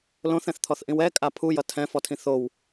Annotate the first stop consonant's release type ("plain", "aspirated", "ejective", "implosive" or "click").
aspirated